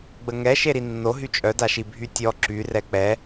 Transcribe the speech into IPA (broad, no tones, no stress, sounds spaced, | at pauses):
ɡ͡b ə ŋ ɛ ʃ e ɾ i nː o ɦ y t͡ʃʼ œ d a ʃ i bʱ y tʲ ɔ ǁ y r ɛ k͡p ɛ